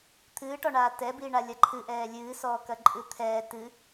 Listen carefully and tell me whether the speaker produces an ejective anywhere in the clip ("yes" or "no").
yes